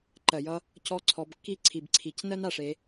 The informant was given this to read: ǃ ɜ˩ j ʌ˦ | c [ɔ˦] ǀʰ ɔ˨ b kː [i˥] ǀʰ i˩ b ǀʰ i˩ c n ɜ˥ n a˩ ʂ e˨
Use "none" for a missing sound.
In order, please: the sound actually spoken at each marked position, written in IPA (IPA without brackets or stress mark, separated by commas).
ɔ˦, i˥